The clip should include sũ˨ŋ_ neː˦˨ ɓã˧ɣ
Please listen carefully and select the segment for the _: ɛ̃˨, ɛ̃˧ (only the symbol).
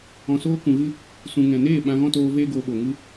ɛ̃˨